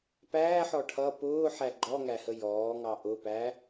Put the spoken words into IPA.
p æː ħ ɔ ʈʰ ʌ p ʊː ħ æ ɡ͡ǃ ɔ ŋ æ h ə j ɔː ŋ ɑ ʔ ʊ p æ

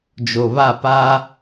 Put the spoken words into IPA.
d͡ʒ o˨ β a˦˨ p a˦

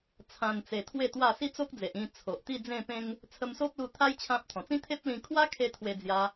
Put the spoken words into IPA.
t͡sʰ ã˨˩ n t͡s e˨˩ t̪ʰ w e˥˧ t̪ w a˥˧ s i˦ t͡s o˦ k̚ d͡z e˨ ʔ ĩ˧ t͡sʰ o˨ ʔ t̪ i˥˧ d͡z ẽ˥˧ p ẽ˦ ŋ | t͡sʰ ə˧ m s o˦ p̚ l u˧ t̪ʰ a˦ j t͡ɕʰ ã˦ p̚ t̪ʰ ɔ̃˨˩ t͡s ĩ˦ t̪ʰ e˦ p̚ l ĩ˧ kʰ w a˦ kʰ e˧ t̪ʰ w e˧ d͡z j a˧

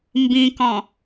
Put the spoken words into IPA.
m b ĩ k ɔ̃

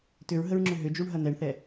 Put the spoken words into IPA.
t ʏ ɹ ɦ ə ɹ ŋ͡ǁ ʏ ɦ ʏ d͡ʒ u ɳ ɦ ɐ n̪ ɛ ɳ θ ɛ

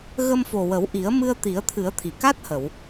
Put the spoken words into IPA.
ɣ ə˧ m f o˨˩ w ə˨˩˦ w ʔ i˨˩˦ ə̯ m ɨ˧ ə̯ t̪ i˨˩˦ ə̯ t̪ʰ ɨ˨˩˦ ə̯ t̪ʰ i˨˩˨ k a˦˥ t̚ h ə˨˩˨ w

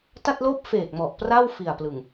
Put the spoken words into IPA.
t a˥˩ t̚ l oː˥˩ p̚ f eː˨˩ k̚ m ɔ˨˩ ʔ p r a˥˩ w f i˨˩ a̯ p l ɯ˨˩ ŋ

